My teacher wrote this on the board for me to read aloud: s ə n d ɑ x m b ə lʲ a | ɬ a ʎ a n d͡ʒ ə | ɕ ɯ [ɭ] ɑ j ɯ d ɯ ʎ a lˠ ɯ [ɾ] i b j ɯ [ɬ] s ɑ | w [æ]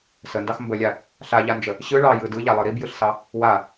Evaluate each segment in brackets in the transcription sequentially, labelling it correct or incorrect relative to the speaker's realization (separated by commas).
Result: correct, correct, correct, incorrect